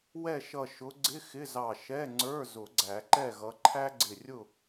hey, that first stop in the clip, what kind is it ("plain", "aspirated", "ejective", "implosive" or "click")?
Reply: click